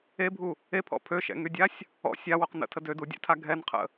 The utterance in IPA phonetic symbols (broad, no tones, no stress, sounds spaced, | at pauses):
e bʱ u | e pʰ ɔ̰ pʰ ø ʃ ɛ̰ ŋ y dʲ a sʲ | ɔ̰ sʲ a w o q n ə̰ tʰ ə d ø d u dʲ ɛ̰ tʰ a ɡʱ ɛ n qʰ ə̰